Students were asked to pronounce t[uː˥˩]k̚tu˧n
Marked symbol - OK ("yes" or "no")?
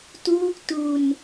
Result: yes